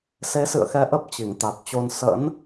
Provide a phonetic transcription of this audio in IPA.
se˨˦sɨ̰˧˨ə̯xɛ˨˦ ʔə˦˥p̚t͡ɕi˧˩ŋt̪a˨˩t̚t͡ɕo˧n sə̰˧˥n

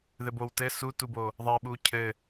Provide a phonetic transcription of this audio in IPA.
ðɘbowtɘ sutubo | ðˤɛɓu cʰɘ

